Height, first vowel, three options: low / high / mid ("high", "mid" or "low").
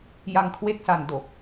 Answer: low